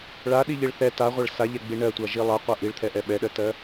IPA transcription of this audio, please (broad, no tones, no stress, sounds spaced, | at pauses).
ɭ a ɗ i ʎ i ɭ θ ɛ t a ʁʷ a ɭ s a ʎ ɛ ɡ͡b i ɳ ɜ tʷ a ʒ i lˠ a qʷ a ʔ i ɭ t̪ʰ ɛ ʔ ɛ ɓ ɛ ɗ ɜ t ɜ